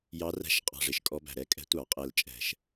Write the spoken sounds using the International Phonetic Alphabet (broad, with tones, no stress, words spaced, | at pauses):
jɑ˧˥ræ̤˧˥ʃ qʼɑ̤˨˩ʐɪ˨˩ʃ kʼɔ˧˥bæ̤˨˩ ɾɛ˧˥kʼɛ̤˧˥ tʷɑ˧˩˧qʼɛ˨˩l t͡ʃʼɛ̤˧˩˧ʃ